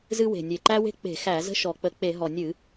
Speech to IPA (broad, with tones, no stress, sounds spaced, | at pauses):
z ɨ˦ w e̤˨˩ nʲ e˨˩ ǃ æ˦ w e̤˦ k͡p e̤˧˩˧ x æ˧˩˧ z ə̤˦ ʃ ɔ˨˩ k͡p ə˧˩˧ k͡p e˧˩˧ ɦ ɔ˨˩ nʲ ɨ˧˩˧